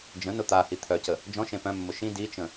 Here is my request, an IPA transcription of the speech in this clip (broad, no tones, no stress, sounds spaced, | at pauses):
d͡ʒ ə̃ n ʊ t̪ a h i t̪ʰ œ c ə | d͡ʒ ɔ̃ ʃ ẽ p œ̃ mː ʊ ʃ ĩ d i t͡ʃ ə̃